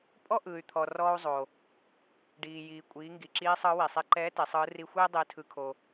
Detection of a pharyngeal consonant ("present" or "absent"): absent